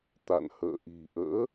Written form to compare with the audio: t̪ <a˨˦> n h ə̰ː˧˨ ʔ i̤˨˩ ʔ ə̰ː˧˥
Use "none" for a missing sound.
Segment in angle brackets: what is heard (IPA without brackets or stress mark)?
a̰˧˨